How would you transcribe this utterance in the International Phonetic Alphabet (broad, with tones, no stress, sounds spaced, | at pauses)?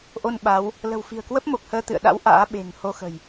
ʔ o˧ n ɓ a˨˦ w | l ə̤˨˩ w f i̤˨˩ ə̯ k w ə˦˥ p̚ m o˨˩ k̚ h əː˧ t̪ ɨ̰˧˨ ə̯ ɗ a̰˧˥ w ʔ a̰ː˧˥ ɓ e̤˨˩ ŋ h o˧ x ə̤˨˩ j